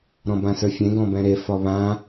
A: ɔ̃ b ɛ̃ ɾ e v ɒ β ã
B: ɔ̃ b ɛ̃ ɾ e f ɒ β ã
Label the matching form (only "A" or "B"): B